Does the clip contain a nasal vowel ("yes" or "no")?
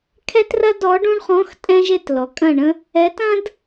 yes